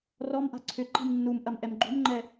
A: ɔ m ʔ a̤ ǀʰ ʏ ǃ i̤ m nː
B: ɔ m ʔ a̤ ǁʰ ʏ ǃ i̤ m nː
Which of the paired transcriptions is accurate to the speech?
A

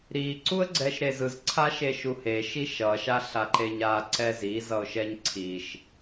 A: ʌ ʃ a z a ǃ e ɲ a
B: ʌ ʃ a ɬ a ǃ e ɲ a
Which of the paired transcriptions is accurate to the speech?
B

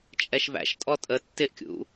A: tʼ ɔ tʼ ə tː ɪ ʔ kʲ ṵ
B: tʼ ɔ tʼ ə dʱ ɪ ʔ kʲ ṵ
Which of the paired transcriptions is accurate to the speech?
A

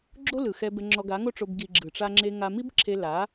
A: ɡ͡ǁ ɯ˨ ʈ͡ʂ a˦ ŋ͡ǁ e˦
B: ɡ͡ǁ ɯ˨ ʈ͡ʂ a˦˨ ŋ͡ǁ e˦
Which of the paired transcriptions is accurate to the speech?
A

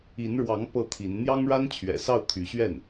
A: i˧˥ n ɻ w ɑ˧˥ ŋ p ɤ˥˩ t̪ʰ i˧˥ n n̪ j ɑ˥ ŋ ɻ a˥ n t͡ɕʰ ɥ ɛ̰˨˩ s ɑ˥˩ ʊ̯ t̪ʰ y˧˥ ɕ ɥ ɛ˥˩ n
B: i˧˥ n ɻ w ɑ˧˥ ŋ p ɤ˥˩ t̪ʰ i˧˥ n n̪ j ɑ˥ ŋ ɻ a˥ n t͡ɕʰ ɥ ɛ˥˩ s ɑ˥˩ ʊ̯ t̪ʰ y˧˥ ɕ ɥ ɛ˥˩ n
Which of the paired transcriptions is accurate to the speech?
A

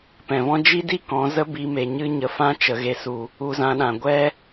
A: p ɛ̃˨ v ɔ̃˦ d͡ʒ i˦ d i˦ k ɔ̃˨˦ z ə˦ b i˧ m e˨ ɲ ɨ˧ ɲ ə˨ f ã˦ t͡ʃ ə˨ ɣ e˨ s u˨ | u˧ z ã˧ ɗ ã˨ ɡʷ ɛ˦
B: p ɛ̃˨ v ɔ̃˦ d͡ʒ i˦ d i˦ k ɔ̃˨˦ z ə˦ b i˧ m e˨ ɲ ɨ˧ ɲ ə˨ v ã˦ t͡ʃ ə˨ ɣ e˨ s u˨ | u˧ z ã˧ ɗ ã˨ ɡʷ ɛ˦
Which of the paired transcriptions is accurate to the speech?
A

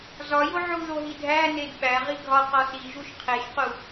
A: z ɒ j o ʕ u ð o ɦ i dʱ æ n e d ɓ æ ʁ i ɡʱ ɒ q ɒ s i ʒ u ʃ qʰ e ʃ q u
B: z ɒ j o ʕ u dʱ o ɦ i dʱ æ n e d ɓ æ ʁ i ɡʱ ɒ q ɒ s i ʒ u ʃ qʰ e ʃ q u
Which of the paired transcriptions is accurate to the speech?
A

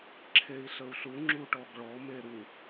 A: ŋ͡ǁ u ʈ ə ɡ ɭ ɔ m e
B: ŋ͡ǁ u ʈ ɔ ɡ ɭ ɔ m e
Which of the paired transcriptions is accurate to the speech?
B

